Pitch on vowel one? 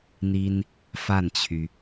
high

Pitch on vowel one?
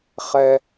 low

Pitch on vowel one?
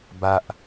low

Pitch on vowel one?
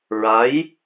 rising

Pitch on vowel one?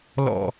low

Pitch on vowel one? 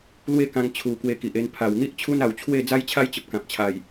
falling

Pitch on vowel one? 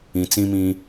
low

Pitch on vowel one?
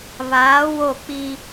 rising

